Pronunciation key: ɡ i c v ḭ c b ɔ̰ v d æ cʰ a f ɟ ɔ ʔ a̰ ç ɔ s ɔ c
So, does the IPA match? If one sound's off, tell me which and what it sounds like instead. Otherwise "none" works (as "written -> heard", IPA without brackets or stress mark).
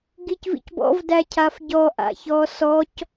none